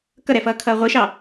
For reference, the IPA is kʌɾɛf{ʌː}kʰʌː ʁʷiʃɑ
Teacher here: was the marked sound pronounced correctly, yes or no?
yes